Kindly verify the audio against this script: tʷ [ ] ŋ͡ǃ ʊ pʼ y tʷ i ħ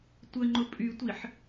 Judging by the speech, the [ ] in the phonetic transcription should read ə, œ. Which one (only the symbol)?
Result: ə